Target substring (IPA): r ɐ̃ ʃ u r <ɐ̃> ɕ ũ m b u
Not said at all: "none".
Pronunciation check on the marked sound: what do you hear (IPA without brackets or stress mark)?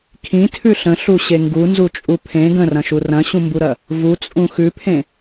ɐ̃